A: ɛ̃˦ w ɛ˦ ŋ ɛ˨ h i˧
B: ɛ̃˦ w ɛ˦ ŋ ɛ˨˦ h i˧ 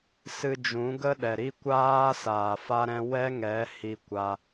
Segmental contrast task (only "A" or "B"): B